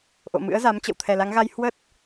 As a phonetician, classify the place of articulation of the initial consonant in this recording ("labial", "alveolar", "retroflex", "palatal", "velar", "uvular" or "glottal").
glottal